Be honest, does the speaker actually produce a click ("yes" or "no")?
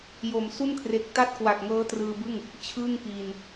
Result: no